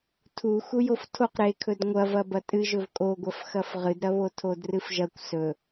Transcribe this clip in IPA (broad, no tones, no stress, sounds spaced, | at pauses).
tʰ u x u j o f tʰ o q ɾ e kʰ ɵ d ŋʷ ɐ v ɐ b ɐ tʼ ɨ ʒ ɵ v kʼ o ɡʷ ɐ f x ɐ f ʁ ɨ d ɾ ɐ β o tʰ o d r ɨ f ʒ ɐ kʷ s ɵ